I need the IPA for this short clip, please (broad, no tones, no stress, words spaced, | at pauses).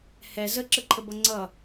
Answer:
hɛ zəǁəǃʰəbʌ ŋ͡ǀʌ